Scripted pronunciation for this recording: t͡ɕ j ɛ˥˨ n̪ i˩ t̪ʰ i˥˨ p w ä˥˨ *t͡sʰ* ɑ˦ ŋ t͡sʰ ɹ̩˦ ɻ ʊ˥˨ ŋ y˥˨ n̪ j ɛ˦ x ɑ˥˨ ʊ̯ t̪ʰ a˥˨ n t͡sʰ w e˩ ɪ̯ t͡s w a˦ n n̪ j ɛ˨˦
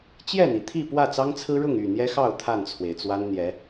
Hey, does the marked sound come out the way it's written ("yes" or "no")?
no